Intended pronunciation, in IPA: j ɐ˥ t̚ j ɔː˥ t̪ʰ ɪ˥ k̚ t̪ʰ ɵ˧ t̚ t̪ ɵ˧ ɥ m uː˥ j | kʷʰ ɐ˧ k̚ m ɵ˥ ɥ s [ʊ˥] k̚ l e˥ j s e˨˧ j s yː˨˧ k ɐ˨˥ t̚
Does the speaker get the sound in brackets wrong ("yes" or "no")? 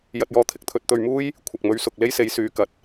yes